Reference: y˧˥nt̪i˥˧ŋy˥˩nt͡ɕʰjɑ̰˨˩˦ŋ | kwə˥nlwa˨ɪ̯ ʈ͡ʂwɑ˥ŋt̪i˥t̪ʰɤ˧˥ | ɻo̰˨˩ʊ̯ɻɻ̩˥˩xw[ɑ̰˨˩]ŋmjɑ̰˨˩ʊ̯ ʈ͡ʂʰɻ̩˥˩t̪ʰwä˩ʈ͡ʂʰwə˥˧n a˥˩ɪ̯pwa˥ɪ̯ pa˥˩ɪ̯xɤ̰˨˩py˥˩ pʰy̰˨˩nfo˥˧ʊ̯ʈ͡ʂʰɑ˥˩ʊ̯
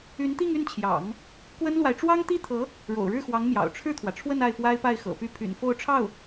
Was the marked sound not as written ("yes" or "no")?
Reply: yes